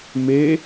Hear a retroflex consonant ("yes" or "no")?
no